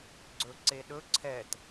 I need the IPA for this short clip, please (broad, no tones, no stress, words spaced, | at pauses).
ɡ͡ǀɵǀeɗɵ ǀʰɛt